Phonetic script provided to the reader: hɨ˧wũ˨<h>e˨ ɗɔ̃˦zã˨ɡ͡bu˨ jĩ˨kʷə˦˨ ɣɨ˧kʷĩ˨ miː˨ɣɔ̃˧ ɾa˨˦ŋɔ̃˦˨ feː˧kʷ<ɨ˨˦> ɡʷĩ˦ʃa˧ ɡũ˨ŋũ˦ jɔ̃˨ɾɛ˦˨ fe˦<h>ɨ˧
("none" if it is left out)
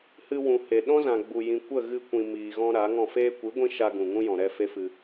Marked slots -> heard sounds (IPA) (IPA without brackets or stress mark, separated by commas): h, ɨ˨˦, f